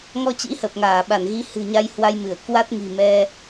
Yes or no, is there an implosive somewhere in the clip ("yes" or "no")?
yes